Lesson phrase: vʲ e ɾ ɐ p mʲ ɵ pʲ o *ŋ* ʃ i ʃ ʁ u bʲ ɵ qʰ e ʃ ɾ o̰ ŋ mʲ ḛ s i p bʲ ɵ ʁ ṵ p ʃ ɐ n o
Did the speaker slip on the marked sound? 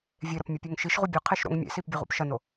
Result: no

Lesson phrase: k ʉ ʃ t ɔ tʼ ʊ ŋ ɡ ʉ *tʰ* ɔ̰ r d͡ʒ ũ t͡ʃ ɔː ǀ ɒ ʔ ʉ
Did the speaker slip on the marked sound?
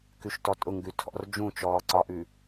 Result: no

